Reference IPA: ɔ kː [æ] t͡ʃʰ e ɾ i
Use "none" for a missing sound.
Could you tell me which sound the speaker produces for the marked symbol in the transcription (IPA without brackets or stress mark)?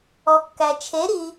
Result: æ